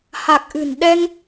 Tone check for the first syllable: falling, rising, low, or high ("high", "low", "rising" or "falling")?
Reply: low